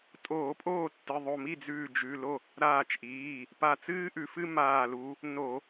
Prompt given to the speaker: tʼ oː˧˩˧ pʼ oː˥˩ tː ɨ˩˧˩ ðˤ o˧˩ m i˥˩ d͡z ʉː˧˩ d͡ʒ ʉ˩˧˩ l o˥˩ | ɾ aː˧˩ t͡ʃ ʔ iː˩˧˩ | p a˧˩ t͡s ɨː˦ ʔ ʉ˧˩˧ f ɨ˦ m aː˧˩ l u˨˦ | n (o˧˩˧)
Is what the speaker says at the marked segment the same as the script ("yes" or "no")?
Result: yes